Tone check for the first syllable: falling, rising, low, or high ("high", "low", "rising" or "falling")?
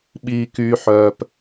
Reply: high